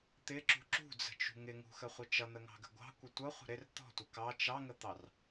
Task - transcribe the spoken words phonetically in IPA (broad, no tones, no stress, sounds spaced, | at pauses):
t̪ ɪ ǁ ṳ ǁ ṳ d͡z ə̤ t͡ʃ ṳ ŋ ɪ ŋ ṳ x ə χʷ ə t͡ʃ ʌ n̪ ə ŋ ɑ̤ ɡ ə̤ ɡʷ ɑ̤ kʷ ə tʷ ʌ χʷ ə̤ ɾ ɪ r t̪ ɔ̤ tʷ ʌ k ɑ t͡ʃ ɑ ŋ ə t̪ ɑ r